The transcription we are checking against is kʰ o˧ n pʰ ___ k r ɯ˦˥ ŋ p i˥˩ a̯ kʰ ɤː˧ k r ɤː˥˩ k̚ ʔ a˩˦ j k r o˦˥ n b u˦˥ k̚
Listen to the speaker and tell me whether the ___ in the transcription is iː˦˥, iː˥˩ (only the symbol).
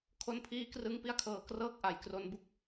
iː˦˥